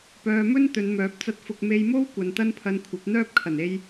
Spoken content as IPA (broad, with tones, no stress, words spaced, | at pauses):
pœː˨mɵ˥n t̪ɵ˨˧nmœː˨˥p̚t͡sɐ˥t̚fʊ˧k̚ me˧jmo˥w kʷɐ˨nt̪ɐ˥npʰɐ˧nkʷʰɐ˨˥p̚ n̪œː˥p̚kʰɐ˨˩ne˧j